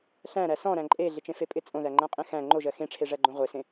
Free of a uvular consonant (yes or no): no